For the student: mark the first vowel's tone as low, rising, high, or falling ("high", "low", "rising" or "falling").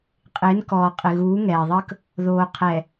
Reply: rising